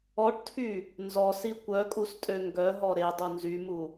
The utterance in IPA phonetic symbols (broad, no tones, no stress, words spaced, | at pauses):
ɔʈtʰy | nzɔsi kʷœkʼustʼø ŋɡœɦɔ ɾedˤu nzymu